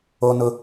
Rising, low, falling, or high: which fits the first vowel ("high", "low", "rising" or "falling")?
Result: high